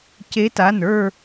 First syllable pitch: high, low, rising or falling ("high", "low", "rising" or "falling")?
rising